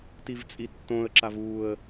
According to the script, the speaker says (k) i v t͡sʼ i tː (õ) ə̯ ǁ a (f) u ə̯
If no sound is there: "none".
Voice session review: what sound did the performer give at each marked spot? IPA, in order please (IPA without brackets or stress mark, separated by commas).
t, õ, v